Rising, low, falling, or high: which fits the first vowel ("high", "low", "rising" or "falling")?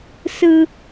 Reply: high